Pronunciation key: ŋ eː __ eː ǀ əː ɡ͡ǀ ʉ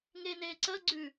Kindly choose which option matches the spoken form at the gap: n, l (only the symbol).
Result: n